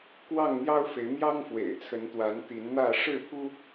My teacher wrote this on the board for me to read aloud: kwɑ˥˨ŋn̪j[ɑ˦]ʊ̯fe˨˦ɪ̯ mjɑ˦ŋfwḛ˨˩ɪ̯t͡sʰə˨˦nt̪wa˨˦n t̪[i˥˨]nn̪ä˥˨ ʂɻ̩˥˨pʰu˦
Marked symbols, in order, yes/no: yes, no

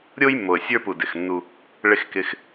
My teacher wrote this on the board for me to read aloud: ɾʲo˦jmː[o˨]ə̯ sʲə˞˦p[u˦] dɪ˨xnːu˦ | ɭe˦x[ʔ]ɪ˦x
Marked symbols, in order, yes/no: yes, no, no

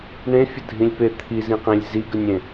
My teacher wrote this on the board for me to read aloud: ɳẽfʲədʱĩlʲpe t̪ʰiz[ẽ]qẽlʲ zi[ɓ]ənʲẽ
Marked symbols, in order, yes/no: no, no

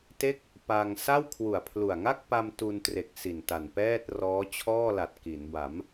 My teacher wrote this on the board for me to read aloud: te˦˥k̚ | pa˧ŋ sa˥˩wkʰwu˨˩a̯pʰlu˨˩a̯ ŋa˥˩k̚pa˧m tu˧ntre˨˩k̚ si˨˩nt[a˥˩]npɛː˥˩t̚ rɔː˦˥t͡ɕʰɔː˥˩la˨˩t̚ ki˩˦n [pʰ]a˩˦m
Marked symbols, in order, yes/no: no, no

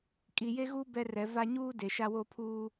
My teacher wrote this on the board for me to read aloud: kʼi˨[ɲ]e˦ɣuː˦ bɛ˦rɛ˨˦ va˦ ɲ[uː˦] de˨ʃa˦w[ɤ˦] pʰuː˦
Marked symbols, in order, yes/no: no, yes, no

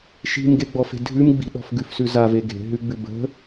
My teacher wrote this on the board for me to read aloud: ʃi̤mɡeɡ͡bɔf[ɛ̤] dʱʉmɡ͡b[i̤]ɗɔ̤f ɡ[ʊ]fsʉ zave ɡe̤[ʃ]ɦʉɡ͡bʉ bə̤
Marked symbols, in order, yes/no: no, yes, no, no

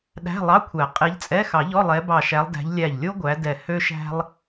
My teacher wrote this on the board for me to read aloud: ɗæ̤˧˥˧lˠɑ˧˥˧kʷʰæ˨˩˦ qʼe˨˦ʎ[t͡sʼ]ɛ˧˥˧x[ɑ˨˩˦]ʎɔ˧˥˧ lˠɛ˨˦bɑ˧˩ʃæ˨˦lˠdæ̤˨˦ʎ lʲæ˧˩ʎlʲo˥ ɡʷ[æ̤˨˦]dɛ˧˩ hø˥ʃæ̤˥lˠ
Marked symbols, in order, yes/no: yes, yes, no

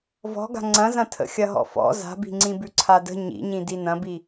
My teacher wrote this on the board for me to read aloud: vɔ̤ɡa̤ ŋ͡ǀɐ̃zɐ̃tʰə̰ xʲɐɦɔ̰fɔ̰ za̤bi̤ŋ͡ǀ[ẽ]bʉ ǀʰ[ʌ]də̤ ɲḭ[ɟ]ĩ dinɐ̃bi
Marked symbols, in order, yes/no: no, no, no

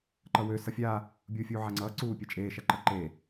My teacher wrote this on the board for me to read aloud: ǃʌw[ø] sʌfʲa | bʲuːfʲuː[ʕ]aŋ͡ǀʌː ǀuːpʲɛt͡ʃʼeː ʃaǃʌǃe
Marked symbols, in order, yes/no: yes, yes

